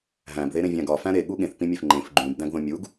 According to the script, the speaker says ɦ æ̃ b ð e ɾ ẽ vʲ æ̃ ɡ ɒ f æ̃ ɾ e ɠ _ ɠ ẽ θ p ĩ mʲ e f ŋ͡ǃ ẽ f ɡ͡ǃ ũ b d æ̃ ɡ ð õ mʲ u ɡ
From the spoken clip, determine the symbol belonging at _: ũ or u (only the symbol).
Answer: u